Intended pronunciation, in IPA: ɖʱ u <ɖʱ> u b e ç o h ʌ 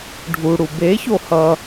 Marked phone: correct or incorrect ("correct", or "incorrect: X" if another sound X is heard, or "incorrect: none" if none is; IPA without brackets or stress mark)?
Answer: incorrect: ɽ